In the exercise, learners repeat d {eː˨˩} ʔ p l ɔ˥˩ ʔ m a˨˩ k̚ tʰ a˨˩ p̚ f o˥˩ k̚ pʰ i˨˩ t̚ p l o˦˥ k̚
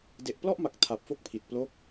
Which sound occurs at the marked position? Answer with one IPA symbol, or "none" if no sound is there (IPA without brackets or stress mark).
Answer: e˨˩